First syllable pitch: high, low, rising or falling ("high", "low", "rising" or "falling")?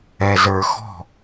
low